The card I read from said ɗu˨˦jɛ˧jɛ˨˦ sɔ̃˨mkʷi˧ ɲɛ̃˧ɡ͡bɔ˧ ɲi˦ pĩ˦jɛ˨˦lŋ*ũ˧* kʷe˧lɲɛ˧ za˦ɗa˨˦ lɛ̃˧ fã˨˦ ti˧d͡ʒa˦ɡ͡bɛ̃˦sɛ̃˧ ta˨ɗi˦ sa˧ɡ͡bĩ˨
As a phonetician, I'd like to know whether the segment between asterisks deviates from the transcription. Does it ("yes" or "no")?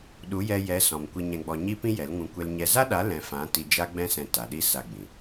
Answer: no